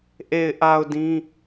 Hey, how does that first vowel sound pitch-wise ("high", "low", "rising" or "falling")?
low